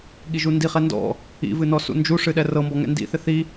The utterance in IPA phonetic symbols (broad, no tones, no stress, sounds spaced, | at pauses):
ɠ i ʒ u n d i χ ɛ n d ɔ̰ | ḭ v ɨ n ɔ s ṵ n d͡ʒ u ʂ ɨ ɗ ɛ r ɤ m b ɔ ŋ ɛ̰ n d ḭ θ ɪ θ i